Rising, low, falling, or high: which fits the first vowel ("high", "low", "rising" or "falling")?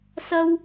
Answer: high